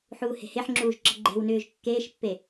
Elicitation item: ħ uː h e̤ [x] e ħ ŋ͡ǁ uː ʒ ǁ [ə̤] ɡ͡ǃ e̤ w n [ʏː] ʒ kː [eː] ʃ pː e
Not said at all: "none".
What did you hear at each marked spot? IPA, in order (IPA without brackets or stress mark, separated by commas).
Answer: h, ə̤, ʏː, eː